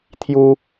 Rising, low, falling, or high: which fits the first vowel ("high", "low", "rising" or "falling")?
high